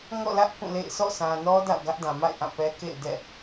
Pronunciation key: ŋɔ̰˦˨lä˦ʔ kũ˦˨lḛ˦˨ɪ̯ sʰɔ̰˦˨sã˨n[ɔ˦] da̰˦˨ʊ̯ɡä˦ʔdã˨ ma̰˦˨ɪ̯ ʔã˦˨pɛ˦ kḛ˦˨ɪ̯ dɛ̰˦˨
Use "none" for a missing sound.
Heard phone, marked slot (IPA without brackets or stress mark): ɔ˦